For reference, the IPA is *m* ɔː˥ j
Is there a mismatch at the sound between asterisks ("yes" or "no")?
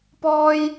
yes